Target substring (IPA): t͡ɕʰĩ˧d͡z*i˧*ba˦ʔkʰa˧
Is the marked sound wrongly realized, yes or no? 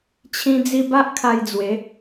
no